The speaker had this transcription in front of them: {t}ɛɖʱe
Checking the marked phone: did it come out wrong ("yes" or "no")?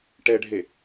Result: yes